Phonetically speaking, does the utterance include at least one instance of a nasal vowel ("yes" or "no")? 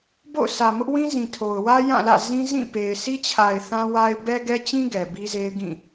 yes